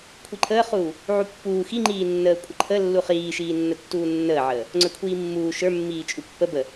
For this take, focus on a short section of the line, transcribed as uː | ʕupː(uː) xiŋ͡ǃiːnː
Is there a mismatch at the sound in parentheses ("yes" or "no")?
no